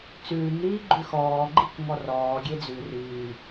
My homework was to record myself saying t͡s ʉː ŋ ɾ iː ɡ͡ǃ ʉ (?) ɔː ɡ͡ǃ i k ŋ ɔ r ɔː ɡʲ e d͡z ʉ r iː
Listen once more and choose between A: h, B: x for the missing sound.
B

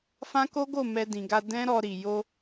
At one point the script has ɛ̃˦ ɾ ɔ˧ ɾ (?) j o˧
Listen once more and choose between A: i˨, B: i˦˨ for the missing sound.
A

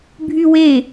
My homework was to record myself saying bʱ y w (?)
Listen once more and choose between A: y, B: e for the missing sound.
B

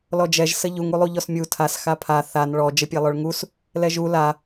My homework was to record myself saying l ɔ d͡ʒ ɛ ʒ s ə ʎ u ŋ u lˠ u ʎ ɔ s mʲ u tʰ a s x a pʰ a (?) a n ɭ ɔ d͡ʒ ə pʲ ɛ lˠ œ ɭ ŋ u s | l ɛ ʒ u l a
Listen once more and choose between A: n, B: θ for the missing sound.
B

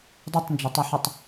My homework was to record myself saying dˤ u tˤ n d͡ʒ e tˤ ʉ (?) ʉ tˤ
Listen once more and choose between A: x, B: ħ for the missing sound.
B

